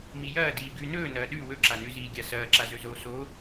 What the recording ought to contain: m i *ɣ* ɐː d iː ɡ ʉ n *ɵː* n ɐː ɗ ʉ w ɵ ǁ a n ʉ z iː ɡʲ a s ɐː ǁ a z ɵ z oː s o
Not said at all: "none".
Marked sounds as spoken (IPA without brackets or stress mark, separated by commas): j, ɵː